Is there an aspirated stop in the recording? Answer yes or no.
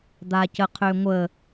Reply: yes